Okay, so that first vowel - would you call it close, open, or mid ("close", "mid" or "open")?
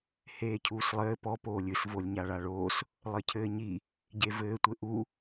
mid